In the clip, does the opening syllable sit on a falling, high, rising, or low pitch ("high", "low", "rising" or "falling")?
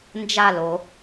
falling